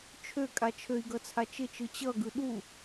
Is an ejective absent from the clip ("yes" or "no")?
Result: no